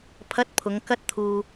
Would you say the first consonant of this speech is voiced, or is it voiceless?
voiceless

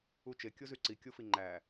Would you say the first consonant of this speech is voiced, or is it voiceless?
voiceless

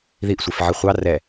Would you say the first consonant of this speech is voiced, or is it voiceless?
voiced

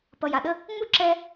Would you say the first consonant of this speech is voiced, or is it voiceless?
voiceless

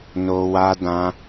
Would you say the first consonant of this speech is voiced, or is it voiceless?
voiced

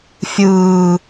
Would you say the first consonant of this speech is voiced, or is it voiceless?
voiceless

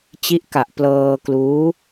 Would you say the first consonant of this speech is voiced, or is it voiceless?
voiceless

